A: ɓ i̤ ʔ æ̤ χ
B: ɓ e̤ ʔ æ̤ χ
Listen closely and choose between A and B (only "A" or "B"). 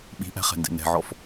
A